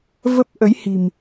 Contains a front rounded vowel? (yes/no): no